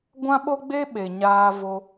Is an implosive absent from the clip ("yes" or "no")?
no